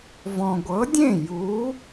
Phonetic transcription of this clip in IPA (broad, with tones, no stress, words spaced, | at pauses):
vɔ̃˨ɡʷɤ˨˥dʲẽ˥˩ ju˨˥